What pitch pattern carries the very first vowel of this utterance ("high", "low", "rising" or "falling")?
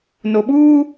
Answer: low